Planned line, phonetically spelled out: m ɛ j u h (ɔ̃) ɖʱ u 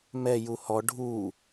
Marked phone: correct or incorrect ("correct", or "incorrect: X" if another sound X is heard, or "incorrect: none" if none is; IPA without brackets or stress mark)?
incorrect: ɔ